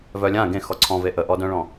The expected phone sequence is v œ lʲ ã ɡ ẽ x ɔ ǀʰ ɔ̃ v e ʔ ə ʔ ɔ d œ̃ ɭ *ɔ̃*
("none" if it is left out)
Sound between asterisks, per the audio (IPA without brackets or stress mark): ɔ̃